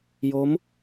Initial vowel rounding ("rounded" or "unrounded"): rounded